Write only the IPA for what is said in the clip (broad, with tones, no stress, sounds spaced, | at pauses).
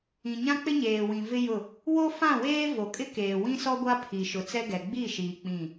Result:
ĩ˨ ɲ ã˦ k͡p ɪ˦ ɲ eː˨ w ĩ˨ v ɪ˦ j ʊ˦˨ | w o˦ f ã˦˨ w eː˦ v o˨ kʼ ɪ˦ k eː˨ w ĩ˦ s ɔ˦ ɡʷ a˦ pʰ i˨ ʃ ʊ˨ t͡s ɛ˦ ɡ ɛ˨ ɡ͡b i˦˨ ʃ iː˨ k͡p ĩ˦˨